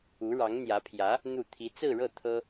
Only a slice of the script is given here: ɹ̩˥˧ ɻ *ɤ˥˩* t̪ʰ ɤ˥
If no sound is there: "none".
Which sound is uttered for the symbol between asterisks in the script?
ɤ˥˩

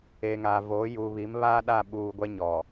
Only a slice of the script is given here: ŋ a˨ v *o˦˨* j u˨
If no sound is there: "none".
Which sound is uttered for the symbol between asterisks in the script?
o˨˦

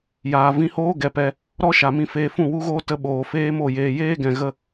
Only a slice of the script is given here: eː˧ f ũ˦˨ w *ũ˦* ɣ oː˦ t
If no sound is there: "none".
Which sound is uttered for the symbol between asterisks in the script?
u˦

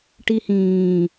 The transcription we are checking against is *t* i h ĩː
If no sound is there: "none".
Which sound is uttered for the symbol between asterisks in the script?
ʈ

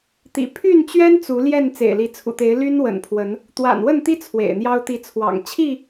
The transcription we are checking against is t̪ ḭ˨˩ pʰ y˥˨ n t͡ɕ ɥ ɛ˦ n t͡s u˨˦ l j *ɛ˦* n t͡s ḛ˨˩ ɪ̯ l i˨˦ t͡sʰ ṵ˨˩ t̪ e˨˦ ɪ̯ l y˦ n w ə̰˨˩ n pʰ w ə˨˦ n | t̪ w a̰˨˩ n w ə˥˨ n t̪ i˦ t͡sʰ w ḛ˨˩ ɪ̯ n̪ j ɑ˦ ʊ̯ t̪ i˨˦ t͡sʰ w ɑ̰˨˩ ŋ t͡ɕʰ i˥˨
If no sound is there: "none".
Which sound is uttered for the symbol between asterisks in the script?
ɛ˥˨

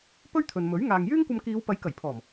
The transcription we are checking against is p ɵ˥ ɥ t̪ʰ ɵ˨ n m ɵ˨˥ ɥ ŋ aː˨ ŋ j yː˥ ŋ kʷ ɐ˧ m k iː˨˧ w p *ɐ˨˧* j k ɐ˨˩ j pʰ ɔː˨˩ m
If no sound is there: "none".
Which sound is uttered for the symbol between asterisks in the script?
ɐ˨˥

